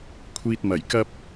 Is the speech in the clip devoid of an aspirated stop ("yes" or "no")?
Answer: no